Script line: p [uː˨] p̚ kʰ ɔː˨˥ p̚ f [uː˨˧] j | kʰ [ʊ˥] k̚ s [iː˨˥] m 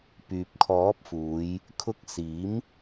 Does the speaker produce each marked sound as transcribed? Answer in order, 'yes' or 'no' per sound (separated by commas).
no, yes, no, yes